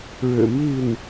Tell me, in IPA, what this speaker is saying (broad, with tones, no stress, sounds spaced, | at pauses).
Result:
ɻ ɻ̩˨˩ m i˥˩ n